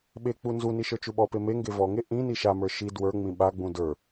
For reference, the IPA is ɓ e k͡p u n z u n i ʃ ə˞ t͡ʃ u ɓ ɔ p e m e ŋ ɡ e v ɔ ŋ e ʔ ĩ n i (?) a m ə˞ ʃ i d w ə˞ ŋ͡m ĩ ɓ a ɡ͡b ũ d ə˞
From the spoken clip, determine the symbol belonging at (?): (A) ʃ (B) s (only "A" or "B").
A